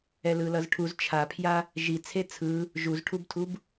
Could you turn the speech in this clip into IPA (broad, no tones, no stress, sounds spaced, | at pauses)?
ɛ l ɯ l ʌ z ʈʰ u z t͡ʃʰ a pʰ j a | ʒ i t͡sʰ e t͡sʰ ɯ | ʒ u z ʈʰ u b tʰ u b